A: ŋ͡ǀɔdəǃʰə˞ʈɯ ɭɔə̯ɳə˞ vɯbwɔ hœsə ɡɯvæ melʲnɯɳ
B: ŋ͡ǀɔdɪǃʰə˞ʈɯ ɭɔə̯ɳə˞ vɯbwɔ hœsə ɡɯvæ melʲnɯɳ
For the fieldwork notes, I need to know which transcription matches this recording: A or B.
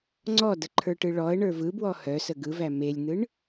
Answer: A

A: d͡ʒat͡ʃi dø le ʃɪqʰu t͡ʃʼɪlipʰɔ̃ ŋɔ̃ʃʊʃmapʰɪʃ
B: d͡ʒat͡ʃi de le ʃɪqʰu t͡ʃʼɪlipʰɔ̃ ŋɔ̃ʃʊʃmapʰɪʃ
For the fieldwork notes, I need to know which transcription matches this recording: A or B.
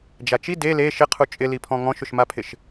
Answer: B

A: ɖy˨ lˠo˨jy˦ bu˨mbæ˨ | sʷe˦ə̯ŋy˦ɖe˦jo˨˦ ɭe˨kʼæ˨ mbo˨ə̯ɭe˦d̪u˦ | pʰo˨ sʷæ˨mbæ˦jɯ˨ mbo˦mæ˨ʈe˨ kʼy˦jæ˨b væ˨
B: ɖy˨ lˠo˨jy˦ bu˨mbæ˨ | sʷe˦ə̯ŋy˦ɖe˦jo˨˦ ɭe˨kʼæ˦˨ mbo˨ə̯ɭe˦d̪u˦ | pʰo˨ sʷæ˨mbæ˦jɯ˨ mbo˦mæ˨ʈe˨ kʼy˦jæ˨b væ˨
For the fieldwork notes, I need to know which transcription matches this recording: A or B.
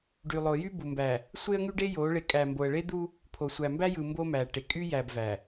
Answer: A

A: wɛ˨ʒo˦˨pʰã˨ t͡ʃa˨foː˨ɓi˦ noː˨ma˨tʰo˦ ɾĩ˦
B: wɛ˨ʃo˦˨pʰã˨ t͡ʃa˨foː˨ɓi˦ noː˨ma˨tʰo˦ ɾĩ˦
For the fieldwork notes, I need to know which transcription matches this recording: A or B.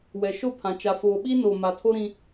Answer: B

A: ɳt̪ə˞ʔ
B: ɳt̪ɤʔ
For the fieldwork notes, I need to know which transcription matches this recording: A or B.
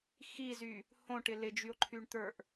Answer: A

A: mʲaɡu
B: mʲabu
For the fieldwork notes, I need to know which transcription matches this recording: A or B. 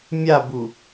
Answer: B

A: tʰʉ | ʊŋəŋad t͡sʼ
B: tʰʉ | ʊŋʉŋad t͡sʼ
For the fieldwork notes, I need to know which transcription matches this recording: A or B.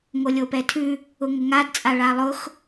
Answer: A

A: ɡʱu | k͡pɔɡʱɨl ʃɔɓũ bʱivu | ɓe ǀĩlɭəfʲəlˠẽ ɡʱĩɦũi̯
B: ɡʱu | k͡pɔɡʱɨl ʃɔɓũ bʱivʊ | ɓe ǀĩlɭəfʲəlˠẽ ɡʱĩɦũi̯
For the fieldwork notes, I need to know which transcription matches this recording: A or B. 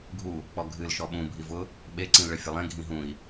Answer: B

